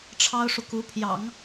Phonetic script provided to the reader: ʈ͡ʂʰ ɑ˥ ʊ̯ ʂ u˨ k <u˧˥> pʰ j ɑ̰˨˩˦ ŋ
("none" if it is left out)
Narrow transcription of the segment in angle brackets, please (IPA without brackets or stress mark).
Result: u˧˥